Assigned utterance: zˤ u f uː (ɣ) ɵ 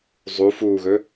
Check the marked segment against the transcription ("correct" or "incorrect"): correct